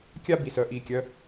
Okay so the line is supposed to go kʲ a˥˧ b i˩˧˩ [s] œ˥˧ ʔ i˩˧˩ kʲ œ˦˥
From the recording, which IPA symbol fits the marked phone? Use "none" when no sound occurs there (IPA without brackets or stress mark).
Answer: s